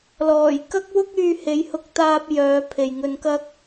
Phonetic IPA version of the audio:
l ɔː˨˩ j k ɐ˥ k̚ w ʊ˥ k̚ yː˧ h e˨˧ j h ʊ˧ k̚ t̪ aː˧ p̚ j œː˨˧ pʰ e˨ j ŋ ɵ˧ n k ɐ˥ k̚

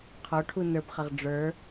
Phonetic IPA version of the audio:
qʰ ɔ ʈʰ u n ə˞ b χ ɐ ʁ ɖ͡ʐ ə˞

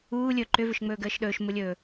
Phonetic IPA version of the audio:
uː lʲ ɵ ǃ ʏ v ʏ ʃ ŋ͡m ɵː ɡ əː ʃ ɗ ɵː ʃ m u lʲ ɵː

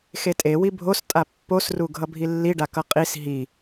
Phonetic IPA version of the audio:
x e tʼ e w i bʱ o s tʼ a pː o s r u ɡʱ ʌ bʱ i lː i ɖ a k ʌ qʼ i s ɦ i

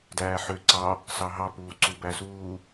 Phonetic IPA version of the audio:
d æː ħ ø ǀ ɑ | s ɑ ɦ ɑ p uː ǀ u b æ s uː

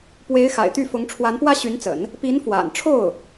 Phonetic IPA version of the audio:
p w e˧˥ ɪ̯ x a̰˨˩ ɪ̯ t̪ y˥˩ f ʊ˧˥ ŋ ʈ͡ʂʰ w a˧˥ n p w ä˥ ɕ y˧˥ n t͡s ə̰˨˩˦ n | p i˧˥ n f w a̰˨˩ n ʈ͡ʂʰ o˥˩ ʊ̯

